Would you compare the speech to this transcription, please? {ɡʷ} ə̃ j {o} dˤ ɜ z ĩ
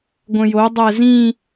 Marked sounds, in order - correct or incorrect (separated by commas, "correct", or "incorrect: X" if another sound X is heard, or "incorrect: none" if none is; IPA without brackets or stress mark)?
correct, correct